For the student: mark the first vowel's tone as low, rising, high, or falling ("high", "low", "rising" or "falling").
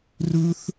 high